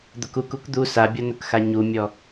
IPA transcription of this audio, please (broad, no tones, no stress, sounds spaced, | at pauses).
d̪ ʊ k u k u k d̪ u s a bʲ ɔ n ʊ k x a ɲ u mʲ ɔ